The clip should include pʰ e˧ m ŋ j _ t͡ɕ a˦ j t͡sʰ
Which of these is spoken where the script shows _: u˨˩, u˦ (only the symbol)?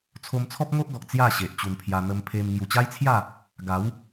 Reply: u˨˩